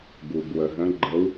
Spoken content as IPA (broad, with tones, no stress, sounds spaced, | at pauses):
ɡ u˩ b w ə˩ ɦ ə̃˨˦ ɡ͡ǃ ə˨˦ w